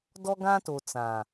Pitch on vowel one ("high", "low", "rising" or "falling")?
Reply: high